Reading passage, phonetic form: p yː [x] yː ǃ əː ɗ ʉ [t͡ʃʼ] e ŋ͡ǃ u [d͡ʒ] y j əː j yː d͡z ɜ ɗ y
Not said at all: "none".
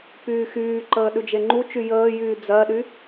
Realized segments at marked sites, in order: x, d͡ʒ, t͡ʃ

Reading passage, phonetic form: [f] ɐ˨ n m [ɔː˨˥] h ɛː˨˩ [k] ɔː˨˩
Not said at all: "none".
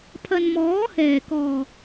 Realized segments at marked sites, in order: pʰ, ɔː˨˥, k

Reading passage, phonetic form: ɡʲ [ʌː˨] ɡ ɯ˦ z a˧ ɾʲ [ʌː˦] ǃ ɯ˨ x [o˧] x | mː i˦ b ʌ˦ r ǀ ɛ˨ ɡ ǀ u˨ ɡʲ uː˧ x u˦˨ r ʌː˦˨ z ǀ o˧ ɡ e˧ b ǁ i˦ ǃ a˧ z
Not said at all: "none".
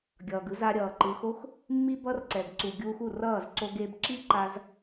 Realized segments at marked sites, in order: ʌː˨, ʌː˨, o˦

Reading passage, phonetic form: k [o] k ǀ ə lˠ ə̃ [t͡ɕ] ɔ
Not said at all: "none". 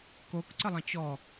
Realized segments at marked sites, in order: o, t͡ɕ

